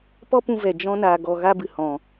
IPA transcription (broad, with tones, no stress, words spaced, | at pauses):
pɔ˦pũ˧vɛ˨ d͡ʒɔ̃˦ na˧ɡɔ˧ ɣa˦bɨ˨ hɔ̃˨